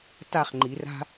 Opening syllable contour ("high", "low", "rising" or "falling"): falling